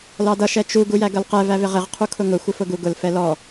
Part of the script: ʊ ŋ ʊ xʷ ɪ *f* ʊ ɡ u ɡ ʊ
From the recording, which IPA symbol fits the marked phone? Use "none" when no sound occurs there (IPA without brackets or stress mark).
f